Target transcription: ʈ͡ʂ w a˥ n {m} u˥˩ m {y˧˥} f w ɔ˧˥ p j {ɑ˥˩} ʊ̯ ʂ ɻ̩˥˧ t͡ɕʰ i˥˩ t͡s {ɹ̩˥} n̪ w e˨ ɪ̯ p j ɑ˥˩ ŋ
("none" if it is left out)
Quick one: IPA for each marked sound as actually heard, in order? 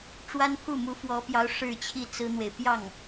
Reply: pʰ, u˧˥, ɑ˧˥, ɹ̩˥

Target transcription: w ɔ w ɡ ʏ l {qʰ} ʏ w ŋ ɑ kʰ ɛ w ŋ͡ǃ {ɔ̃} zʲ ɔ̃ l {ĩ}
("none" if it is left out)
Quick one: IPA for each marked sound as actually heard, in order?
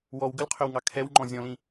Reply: qʰ, ɔ̃, ĩ

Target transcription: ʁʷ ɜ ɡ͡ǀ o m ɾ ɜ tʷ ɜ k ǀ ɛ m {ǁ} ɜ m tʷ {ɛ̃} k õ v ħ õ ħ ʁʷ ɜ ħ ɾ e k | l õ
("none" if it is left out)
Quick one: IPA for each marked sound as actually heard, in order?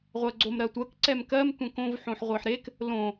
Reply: k, ɛ̃

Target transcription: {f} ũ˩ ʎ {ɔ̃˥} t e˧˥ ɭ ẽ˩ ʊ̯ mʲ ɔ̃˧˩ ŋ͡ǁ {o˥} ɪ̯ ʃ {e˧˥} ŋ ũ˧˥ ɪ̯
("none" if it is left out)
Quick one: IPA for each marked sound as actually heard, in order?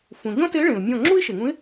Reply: f, ɔ̃˥, u˥, e˩

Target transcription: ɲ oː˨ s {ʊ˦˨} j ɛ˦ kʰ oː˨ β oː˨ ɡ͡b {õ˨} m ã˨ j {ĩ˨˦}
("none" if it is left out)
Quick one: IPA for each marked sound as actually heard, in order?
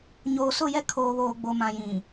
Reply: ʊ˦˨, o˨, ĩ˨

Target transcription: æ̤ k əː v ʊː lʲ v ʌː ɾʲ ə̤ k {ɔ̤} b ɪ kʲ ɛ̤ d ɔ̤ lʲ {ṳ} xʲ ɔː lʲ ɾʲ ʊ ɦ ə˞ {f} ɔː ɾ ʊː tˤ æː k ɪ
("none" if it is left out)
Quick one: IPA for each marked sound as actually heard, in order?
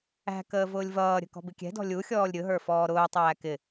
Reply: ɔ̤, u, f

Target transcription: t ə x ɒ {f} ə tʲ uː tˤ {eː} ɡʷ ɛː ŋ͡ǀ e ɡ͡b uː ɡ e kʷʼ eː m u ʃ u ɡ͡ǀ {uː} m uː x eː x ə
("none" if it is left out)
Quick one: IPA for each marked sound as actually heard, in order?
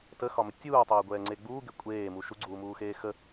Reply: m, eː, uː

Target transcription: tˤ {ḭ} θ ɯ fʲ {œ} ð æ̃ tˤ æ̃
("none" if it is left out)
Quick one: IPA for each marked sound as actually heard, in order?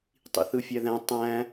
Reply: ḭ, æ

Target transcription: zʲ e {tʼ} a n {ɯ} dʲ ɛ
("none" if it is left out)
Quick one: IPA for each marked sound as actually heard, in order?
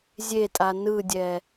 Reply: tʼ, ɯ

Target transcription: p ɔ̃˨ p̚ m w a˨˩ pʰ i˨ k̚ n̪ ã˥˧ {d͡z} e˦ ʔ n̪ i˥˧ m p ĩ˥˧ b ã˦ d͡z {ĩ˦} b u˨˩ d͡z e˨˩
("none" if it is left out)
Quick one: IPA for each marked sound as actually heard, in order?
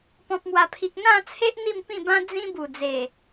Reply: t͡sʰ, ĩ˦

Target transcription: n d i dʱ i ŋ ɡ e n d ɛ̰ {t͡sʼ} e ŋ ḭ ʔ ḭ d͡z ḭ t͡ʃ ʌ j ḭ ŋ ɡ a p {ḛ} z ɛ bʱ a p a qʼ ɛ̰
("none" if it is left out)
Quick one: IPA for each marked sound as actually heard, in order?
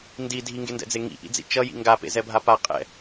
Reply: d͡z, ḛ

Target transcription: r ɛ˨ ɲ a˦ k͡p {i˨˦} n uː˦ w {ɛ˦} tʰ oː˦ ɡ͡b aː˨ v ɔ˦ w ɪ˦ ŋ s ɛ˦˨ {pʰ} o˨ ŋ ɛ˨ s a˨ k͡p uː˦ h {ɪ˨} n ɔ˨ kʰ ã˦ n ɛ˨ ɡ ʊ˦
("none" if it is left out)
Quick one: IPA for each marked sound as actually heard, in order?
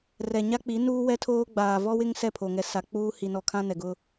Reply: i˨˦, ɛ˦, pʰ, i˨

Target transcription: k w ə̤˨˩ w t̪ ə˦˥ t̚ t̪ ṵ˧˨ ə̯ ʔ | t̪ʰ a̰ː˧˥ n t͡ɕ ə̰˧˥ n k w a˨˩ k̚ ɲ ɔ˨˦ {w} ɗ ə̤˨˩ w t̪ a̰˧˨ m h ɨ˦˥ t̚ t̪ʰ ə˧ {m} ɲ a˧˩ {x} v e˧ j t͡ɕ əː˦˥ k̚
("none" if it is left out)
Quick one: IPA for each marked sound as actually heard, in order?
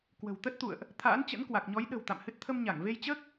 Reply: j, m, ŋ

